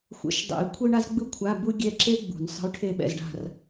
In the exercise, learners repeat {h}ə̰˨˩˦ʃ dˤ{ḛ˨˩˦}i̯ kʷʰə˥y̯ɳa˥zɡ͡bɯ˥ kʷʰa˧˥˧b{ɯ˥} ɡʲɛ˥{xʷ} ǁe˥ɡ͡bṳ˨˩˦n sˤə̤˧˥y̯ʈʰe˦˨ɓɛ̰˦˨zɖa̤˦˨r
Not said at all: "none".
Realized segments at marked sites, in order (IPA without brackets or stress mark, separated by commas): xʷ, ḛ˨˩˦, u˥, none